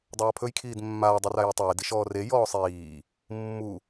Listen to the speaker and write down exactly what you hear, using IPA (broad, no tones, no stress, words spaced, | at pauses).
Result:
dˤaːpʰɵjkʰiːd mːaːdˤera jutˤeːdi ʃɔːre jɔːsˤiː | mːu